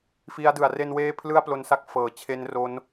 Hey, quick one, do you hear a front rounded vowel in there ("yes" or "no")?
no